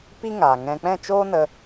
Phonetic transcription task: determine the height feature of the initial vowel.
high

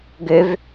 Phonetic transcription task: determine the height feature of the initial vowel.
mid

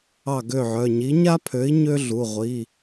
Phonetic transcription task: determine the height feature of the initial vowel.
low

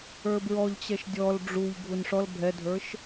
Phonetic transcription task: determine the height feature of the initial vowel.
mid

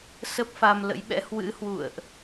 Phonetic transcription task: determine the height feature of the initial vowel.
mid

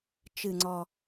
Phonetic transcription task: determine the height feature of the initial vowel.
high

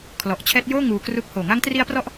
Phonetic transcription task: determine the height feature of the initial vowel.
mid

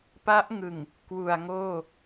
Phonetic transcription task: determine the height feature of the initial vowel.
low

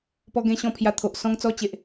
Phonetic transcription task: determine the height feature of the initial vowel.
mid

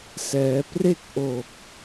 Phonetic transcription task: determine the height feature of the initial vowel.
mid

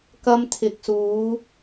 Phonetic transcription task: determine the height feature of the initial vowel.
low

